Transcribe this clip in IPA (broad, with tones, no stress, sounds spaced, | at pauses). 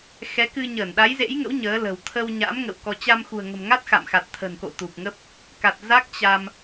x ɛ˨˦ k ɨ˧ ɲ əː˧˩ n ɗ a˨˦ j z ḛ˧˥ j ŋ ə̰˧˥ w ɲ əː˨˦ l ə̤˨˩ w t̪ʰ ə˧ w ɲ a̰˧˥ m ŋ ə̰˧˨ w k ɔ˧ t͡ɕ a˧ m x ṳ˨˩ ə̯ ŋ ə̤˨˩ m ŋ a˦˥ t̚ x a̰˧˨ m x a˨˩ t̚ t̪ʰ ə̤˨˩ n k o̰˧˨ t̪ u˨˩ p̚ ŋ ə˦˥ p̚ | k a˨˩ t̚ z a˦˥ k̚ t͡ɕ a˧ m